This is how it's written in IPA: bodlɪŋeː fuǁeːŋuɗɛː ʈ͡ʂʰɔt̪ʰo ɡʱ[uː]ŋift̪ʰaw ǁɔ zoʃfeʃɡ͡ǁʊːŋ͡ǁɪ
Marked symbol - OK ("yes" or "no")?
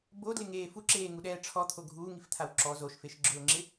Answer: yes